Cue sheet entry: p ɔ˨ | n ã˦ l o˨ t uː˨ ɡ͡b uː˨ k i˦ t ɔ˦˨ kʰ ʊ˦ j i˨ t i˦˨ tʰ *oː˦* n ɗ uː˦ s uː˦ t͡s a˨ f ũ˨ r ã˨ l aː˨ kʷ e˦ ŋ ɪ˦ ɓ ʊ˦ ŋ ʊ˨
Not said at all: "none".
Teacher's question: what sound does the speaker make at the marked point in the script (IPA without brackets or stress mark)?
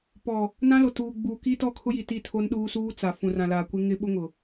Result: o˦